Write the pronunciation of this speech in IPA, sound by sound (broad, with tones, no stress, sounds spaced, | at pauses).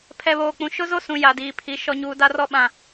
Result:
pʰ ɛ˨ β oː˨ k͡p ũ˨ ʃ ʊ˦ z o˦ s ũ˨ j a˨ d iː˨ pʰ i˨˦ ʃ ɔ˨ ɲ uː˨ d a˦ r ɔ˦˨ ɓ ã˨